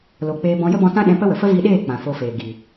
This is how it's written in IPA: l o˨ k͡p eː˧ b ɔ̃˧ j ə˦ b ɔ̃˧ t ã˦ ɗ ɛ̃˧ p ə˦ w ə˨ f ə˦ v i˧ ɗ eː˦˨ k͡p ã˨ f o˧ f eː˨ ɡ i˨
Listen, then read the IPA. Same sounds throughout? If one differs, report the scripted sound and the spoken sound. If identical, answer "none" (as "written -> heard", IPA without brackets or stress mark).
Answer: none